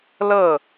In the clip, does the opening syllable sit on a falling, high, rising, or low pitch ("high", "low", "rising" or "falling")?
falling